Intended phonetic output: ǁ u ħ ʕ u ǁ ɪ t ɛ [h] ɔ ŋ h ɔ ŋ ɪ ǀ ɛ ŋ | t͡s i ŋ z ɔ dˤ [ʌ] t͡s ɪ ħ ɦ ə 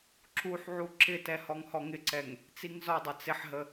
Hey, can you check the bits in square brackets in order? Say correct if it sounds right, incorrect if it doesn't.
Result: correct, correct

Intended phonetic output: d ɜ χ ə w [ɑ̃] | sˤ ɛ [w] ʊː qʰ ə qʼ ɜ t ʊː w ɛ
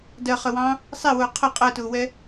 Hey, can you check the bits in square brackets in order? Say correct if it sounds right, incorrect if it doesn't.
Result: correct, correct

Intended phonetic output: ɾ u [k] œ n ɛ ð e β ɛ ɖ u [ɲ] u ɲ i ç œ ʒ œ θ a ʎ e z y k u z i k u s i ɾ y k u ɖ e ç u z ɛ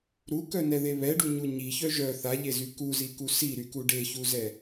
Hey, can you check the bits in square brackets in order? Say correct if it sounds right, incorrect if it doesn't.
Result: correct, correct

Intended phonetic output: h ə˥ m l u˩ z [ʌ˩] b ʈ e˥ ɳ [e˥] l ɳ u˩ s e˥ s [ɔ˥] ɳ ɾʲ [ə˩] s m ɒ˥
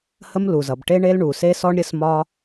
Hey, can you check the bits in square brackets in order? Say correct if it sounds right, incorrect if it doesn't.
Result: correct, correct, correct, incorrect: ə˥

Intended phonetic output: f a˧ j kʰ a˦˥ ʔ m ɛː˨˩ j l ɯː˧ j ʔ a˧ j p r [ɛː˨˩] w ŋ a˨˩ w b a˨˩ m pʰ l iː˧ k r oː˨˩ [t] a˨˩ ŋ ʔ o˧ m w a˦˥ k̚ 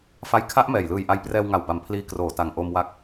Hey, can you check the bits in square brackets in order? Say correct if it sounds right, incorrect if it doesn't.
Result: incorrect: ɛː˧, correct

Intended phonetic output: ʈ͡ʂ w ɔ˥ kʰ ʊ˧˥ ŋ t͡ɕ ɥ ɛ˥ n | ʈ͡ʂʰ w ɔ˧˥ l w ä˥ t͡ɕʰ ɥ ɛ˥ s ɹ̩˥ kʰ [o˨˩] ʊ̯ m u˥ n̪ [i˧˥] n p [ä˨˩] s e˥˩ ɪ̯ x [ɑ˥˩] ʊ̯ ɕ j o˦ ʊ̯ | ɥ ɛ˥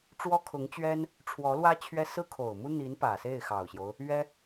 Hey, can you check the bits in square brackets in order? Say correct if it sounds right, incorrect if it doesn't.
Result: correct, correct, correct, incorrect: ɑ˨˩

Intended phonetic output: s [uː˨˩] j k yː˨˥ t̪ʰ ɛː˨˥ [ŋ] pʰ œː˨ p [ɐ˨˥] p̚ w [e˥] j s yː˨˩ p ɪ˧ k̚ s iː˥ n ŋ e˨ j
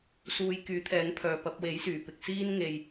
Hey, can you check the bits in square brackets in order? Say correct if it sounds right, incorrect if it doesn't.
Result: incorrect: uː˨˧, correct, incorrect: ɐ˧, incorrect: e˨˥

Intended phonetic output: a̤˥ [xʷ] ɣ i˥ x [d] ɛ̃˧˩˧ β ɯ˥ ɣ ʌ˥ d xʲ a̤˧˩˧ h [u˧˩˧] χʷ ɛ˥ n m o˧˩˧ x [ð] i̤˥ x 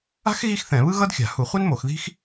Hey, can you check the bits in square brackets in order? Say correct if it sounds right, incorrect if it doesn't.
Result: incorrect: x, incorrect: θ, correct, correct

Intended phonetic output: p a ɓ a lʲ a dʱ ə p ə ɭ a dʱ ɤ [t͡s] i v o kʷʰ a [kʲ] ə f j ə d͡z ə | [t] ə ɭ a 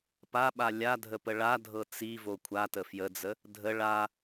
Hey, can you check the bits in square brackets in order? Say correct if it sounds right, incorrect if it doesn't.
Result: correct, incorrect: t, incorrect: dʱ

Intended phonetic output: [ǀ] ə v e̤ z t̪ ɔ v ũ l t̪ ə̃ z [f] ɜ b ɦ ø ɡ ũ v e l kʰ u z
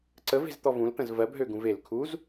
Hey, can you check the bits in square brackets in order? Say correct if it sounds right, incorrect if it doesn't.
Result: correct, incorrect: v

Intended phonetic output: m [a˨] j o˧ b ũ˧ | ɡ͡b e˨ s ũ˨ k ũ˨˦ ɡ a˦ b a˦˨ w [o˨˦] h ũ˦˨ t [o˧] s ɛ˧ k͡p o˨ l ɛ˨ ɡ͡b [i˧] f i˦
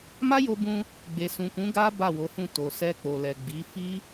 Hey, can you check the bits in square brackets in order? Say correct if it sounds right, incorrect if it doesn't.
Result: incorrect: a˦, correct, incorrect: o˨, incorrect: i˨˦

